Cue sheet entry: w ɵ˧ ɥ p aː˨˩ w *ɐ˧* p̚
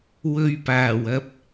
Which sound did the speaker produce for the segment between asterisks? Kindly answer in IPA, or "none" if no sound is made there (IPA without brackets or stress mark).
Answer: ɐ˧